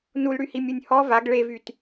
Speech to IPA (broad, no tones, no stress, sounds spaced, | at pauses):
n u l ɽ y h i mʲ u nʲ h ɔ v a ɡ ɭ e v y t